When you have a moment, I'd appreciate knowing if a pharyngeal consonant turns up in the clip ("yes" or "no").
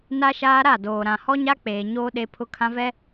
no